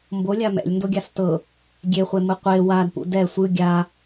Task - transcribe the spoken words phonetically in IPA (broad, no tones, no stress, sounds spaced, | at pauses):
m b o lʲ a m ɛ̰ lʲ n d o ɡʲ a s t ɤ | ɡʲ e χʷ e m ɯ qʷ e w a d p ṵ d ɛ sʷ ɯ ɡʲ a